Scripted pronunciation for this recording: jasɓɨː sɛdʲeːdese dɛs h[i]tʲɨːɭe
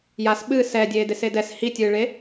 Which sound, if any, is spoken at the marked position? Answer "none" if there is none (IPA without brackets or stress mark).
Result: i